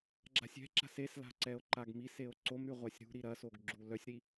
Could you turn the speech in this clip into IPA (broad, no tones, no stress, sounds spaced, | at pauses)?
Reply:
ɡ͡ǁ a̤ sʲ ɛ̤ ǁ a̤ s e s l a̤ ǀ ɛ o̯ ǃ a ɡ m i s e o̯ ǀ o m ɾ y ʁʷ a sʲ ɾ ṳ ɾ i ɾ ɐ s o ɡ ɡ͡ǁ u l œ sʲ ɾ i